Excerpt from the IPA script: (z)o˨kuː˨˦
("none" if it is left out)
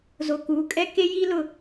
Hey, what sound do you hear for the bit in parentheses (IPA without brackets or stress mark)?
z